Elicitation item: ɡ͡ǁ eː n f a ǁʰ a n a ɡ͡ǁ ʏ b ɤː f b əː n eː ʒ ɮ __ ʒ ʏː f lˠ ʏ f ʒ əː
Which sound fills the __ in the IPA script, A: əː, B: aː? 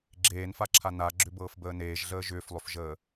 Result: A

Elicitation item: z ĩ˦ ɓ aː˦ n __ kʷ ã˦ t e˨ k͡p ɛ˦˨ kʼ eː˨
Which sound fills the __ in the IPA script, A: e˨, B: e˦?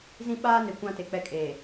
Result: A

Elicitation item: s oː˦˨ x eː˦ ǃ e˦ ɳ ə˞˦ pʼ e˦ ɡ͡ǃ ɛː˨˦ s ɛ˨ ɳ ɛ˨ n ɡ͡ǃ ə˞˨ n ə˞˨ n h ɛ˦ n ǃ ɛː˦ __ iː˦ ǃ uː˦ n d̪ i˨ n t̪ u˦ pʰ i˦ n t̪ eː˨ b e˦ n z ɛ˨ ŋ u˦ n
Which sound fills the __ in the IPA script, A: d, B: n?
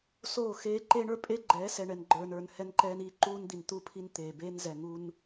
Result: B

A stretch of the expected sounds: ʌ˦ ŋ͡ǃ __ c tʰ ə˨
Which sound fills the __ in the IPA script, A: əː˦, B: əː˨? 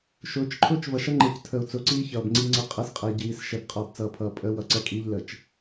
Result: B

